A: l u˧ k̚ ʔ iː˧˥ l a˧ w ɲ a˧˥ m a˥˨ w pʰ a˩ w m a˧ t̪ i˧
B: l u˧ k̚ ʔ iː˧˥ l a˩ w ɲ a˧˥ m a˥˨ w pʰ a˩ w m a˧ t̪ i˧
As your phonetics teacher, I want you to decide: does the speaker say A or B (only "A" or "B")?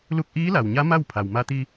B